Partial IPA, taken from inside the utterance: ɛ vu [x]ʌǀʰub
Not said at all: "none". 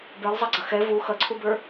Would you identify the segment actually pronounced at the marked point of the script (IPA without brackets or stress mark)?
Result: x